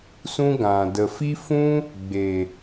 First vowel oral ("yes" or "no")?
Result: no